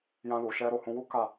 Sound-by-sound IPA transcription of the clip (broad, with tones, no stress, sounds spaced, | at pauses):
j ã˧ l u˨ ʃ ɛ˧ ɾ o˨ h ũ˧ w u˦ k a˦˨